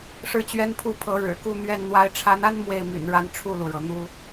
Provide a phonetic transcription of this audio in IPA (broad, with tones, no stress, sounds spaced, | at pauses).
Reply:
ʂ ɻ̩˥˩ t͡ɕ ɥ ɛ˥ n pʰ u˥˩ pʰ ɤ˧˥ ɻ ɻ̩˨˩ k u˥˧ n̪ ɥ ɛ˥˩ n n̪ w a˥ ɪ̯ ʈ͡ʂʰ a˧˥ n a˥ n m w e˥˩ ɪ̯ m y̰˨˩ n ɻ a˥˧ n ʈ͡ʂʰ u˥˩ l u˩ ɻ ɤ˩ n̪ u˥